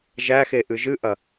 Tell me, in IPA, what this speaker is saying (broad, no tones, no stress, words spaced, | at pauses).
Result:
ʒæxe ʔɨʒɨʔɐ